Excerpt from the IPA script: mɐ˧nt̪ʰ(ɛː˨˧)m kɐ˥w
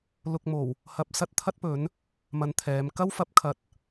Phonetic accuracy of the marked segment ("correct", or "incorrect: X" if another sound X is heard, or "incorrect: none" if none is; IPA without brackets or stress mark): correct